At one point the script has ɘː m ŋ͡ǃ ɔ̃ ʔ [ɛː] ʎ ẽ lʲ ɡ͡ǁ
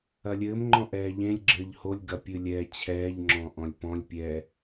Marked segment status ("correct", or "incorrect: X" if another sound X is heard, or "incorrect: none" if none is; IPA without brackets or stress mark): correct